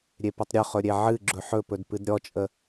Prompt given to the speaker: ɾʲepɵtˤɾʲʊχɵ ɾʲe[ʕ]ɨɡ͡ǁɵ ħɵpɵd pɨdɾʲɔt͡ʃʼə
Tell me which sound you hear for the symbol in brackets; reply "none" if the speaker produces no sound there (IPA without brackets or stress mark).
ʕ